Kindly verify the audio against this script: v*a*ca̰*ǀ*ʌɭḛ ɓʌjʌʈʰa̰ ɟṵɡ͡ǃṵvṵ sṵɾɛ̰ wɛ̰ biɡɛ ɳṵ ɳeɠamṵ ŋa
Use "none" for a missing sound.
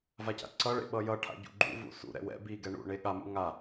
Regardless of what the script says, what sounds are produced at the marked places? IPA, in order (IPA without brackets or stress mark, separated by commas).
a, ǀ